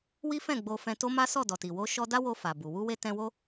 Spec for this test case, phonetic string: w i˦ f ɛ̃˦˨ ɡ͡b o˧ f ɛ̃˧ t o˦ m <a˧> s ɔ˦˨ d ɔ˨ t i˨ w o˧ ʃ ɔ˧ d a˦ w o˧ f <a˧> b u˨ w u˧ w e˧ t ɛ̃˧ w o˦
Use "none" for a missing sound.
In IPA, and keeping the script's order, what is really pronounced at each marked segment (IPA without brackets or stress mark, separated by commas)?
a˦, a˨